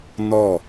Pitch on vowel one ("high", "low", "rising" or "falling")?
falling